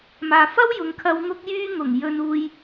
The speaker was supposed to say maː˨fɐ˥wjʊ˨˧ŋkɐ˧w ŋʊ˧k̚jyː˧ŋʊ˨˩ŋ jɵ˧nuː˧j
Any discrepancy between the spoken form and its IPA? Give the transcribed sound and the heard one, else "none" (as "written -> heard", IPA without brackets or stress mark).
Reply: k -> kʰ